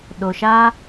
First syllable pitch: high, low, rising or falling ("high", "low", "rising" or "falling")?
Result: low